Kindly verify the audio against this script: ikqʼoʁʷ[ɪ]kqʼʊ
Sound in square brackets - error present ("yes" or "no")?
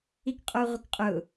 no